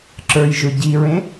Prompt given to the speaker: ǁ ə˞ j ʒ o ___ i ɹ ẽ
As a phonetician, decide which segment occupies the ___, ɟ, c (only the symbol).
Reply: ɟ